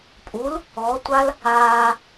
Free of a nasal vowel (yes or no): yes